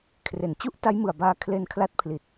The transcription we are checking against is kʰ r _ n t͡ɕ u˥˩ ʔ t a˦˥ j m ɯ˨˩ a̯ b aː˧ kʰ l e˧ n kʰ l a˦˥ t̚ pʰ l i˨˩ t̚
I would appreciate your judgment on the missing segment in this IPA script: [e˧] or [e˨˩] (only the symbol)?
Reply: e˨˩